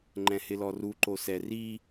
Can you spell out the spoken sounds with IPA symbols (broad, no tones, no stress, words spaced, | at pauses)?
ŋ͡ǃɛ̃hɪlɔru ǃosɛri